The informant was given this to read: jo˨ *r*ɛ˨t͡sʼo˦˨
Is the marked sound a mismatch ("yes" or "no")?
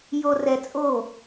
no